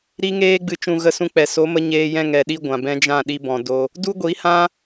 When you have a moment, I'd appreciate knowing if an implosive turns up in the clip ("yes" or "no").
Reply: yes